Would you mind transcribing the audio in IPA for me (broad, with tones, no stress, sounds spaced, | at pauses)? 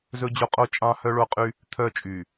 z ɵ˦ d͡ʑ o˦ qʼ o˦ t͡ʃʼ ɑ̃˦ h œ˦ ɭ o˦ qʼ y˦ | t̪ʰ œ˦˨ t͡ʃʼ y˨